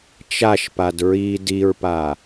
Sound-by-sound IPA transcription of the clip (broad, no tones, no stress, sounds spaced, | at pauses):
t͡ʃ a ʃ p a d ɹ i d i ɹ p a